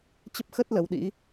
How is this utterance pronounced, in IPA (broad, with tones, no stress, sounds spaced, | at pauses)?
t͡ɕ ə˦˥ p̚ x ə˦˥ t̚ l ə˨˦ w ɗ ḭ˧˥